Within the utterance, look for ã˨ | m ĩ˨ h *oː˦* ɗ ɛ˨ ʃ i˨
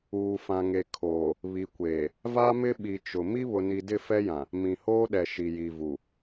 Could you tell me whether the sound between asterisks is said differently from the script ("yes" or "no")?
no